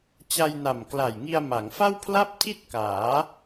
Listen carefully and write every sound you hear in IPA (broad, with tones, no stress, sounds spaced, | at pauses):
t͡ɕ a˧ j n a˨˩ m k l a˨˩ j ŋ i˧ a̯ m a˩˦ ŋ f a˥˩ w pʰ l a˥˩ p̚ tʰ i˥˩ t̚ k aː˩˦